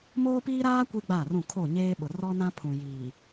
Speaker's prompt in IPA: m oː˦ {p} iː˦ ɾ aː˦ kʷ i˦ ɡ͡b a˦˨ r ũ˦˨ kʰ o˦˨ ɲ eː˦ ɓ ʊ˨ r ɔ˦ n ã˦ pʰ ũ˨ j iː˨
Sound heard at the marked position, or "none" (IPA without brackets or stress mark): p